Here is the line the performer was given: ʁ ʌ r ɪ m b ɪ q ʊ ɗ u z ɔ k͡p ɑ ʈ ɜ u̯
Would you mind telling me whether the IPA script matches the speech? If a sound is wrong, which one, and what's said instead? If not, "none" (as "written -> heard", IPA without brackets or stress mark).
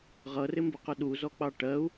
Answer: none